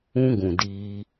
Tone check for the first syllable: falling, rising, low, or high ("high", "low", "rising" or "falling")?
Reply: high